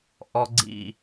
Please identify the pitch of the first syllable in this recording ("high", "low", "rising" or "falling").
high